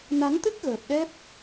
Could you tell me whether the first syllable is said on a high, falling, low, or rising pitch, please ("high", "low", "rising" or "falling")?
rising